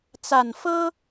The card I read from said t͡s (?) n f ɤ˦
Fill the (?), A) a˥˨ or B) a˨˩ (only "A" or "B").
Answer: B